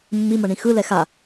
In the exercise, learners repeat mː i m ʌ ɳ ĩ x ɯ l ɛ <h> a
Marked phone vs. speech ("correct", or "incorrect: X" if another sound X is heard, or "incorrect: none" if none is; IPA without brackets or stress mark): incorrect: x